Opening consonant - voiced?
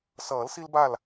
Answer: no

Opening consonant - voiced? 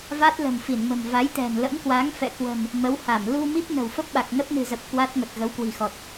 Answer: yes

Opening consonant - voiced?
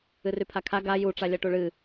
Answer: yes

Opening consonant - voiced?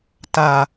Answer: no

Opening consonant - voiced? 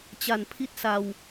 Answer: no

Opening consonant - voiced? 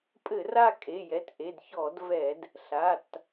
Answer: no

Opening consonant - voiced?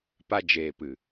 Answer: no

